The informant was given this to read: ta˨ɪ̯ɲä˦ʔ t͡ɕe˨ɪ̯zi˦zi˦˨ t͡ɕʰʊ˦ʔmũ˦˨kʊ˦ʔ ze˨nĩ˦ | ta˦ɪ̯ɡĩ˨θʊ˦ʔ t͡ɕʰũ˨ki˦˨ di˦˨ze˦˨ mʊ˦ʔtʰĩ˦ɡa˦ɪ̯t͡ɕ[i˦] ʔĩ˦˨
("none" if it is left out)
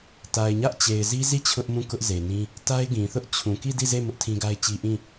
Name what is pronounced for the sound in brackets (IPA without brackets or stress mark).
i˦